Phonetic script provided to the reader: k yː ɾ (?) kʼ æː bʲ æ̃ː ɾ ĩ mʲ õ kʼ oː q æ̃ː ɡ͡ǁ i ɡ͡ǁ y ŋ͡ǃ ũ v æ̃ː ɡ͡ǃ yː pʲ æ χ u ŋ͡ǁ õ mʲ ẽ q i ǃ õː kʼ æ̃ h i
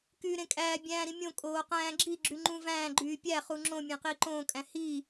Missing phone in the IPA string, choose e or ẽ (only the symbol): ẽ